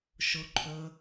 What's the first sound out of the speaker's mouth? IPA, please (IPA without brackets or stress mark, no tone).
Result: ʃ